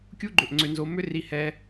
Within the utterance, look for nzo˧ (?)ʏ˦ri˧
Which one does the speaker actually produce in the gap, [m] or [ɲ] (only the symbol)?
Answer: m